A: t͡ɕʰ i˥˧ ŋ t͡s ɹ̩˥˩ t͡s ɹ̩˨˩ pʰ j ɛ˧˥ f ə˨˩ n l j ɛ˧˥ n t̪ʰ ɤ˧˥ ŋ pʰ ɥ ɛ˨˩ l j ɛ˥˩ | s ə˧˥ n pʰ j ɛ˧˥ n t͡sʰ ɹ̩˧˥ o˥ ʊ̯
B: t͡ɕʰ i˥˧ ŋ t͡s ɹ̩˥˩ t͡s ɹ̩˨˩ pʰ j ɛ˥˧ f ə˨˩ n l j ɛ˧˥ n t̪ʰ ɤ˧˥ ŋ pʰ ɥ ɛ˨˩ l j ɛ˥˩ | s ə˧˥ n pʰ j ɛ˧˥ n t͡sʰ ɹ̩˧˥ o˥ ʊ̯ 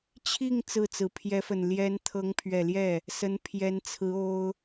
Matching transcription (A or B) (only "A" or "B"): A